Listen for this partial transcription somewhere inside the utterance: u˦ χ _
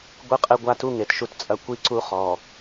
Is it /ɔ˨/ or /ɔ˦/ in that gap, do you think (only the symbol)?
ɔ˨